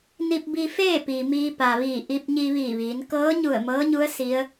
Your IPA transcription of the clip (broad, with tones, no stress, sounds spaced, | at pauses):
n i˧ p̚ b i˧ f eː˥˨ p iː˩ m iː˧ p a˩ ʋ iː˧˩ ʔ i˧ p̚ ɲ i˧ ʋ iː˧˩ ʋ iː˩˧ n k ɤː˧˥ ɲ u˧˩ ə̯ m ɤː˧˥ ɲ u˧˥ ə̯ s i˧˥ ə̯